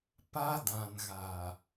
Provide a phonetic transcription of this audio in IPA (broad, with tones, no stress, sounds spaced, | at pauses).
p a˦ d ã˨ n ɣ a˨